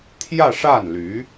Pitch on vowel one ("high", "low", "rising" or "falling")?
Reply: falling